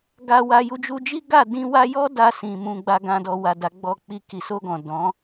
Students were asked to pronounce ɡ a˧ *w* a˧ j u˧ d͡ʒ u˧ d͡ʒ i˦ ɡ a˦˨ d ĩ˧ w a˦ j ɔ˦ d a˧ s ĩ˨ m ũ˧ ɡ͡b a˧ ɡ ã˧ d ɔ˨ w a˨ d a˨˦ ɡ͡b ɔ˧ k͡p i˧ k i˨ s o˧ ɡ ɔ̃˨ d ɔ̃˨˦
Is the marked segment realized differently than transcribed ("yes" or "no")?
no